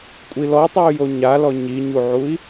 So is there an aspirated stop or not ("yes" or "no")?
no